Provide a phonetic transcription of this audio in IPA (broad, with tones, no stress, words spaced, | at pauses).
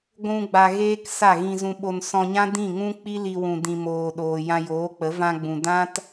ɡʷũ˧ ɡ͡ba˧ɣeː˦k sa˦˨ɣĩ˧zũ˧ɓo˧n sɔ̃˧ɲã˦ dĩ˦˨ŋũ˦ k͡pi˦li˧ wũ˨dĩ˨moː˨ɗoː˨ jã˧joː˨˦k͡pə˨˦ vã˧ɡ͡bũ˨ dã˦t